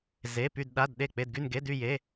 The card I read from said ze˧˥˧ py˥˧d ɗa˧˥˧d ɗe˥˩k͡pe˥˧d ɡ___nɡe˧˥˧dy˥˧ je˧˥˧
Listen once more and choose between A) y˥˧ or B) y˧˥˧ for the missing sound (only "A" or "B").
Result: A